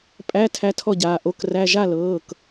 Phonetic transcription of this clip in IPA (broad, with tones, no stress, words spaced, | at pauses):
pʼæ˧˥˧ tʰæ˧˥tʰɔ˥˩ɟaː˩˧˩ ʔo˧˥˧kræ˧˥˧ ʒa˥˩lɤː˩˧˩k